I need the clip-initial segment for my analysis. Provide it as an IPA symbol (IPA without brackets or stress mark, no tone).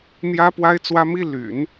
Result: n̪